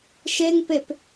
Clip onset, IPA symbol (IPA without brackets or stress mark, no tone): ʃ